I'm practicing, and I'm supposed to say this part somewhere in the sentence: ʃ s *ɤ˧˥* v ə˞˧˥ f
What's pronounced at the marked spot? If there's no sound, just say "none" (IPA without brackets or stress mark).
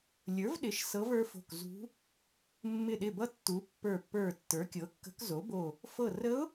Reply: ɤ˧˥